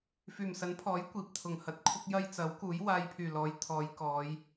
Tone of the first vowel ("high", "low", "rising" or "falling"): low